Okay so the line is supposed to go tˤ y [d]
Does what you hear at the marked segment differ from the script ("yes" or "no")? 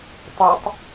yes